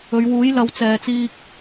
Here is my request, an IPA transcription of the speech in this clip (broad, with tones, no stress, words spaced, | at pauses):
ɵ˨˧ɥwuː˨˥jlɐ˨˧w t͡sɛː˨t͡siː˧k̚